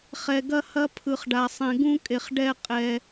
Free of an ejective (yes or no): no